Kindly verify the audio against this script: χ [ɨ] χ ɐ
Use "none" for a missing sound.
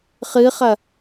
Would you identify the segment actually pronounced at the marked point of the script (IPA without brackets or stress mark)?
ɨ